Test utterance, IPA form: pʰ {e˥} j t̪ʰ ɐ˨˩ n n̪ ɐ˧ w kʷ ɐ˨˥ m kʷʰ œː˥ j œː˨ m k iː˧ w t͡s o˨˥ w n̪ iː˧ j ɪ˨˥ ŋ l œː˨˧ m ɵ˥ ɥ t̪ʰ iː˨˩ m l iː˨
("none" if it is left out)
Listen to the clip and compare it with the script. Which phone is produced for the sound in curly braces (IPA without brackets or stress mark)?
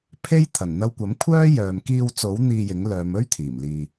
e˥